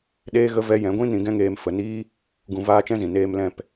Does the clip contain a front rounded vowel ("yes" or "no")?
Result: no